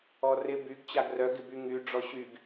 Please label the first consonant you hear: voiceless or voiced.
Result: voiced